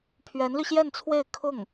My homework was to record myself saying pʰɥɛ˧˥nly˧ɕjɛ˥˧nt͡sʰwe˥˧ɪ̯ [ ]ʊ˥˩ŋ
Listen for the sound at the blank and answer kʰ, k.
kʰ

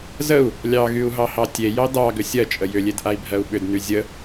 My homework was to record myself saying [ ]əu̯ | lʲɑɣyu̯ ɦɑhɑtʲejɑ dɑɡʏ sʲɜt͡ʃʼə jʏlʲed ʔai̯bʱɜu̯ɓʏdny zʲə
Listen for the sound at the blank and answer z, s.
z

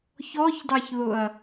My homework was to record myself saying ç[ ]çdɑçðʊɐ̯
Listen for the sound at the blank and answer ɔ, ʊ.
ɔ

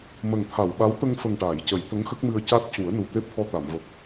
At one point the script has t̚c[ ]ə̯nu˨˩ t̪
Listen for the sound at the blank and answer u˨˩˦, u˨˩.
u˨˩˦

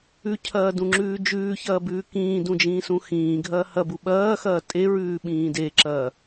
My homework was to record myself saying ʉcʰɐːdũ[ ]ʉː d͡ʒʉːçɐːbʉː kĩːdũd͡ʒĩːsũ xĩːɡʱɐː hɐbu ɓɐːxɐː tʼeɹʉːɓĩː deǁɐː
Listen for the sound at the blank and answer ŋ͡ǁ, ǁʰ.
ŋ͡ǁ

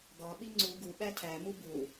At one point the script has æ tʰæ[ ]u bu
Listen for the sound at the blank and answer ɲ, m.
m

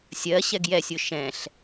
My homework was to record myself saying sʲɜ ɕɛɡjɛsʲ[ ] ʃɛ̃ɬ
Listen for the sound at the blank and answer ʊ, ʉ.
ʊ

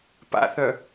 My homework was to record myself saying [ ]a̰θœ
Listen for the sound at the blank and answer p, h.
p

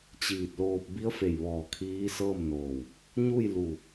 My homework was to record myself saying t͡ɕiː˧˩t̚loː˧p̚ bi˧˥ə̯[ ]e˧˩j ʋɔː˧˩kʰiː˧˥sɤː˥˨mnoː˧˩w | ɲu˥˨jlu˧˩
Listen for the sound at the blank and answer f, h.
f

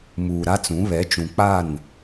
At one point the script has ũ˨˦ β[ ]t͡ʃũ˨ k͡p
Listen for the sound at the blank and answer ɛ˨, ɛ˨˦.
ɛ˨˦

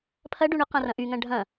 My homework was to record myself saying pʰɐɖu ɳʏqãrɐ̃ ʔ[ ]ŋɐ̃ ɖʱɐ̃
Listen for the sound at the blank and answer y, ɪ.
y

